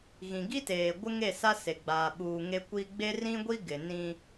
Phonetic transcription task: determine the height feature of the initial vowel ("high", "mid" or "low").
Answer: high